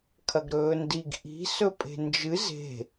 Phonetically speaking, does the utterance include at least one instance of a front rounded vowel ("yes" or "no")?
no